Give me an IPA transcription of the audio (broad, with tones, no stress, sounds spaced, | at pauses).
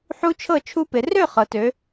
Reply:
ħ u˦˥ t͡ʃʰ ɤ˥˩ t͡ʃʰ u˦˥ p ɪ˩˧ r ø˥˩ χ ɤ˩ t ø˩˧